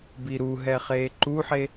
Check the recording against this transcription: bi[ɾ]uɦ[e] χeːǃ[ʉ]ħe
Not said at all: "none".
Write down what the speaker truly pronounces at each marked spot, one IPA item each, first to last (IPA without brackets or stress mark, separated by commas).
ɾ, ɛ, u